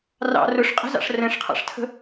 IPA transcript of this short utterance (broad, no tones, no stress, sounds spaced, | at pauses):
r ɑ̰ r ʊ ʂ qʼ ə̤ z ɑ̰ ʂ r ɛ̃ ʂ qʰ ɑ̰ ʂ tʰ ə̤